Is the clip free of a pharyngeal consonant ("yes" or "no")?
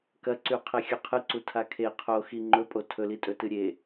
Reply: yes